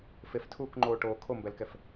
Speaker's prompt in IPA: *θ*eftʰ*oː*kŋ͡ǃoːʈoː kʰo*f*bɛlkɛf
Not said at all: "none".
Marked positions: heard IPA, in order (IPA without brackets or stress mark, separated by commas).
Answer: f, uː, m